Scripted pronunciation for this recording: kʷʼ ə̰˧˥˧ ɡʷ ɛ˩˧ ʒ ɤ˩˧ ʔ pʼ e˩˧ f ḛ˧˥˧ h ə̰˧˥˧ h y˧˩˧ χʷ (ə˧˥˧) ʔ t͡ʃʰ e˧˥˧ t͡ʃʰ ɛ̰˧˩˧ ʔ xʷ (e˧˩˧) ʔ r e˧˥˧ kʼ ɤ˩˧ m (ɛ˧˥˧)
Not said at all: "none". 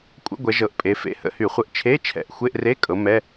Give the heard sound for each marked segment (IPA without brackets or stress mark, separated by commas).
ə˧˥˧, e˧˥˧, ɛ˧˥˧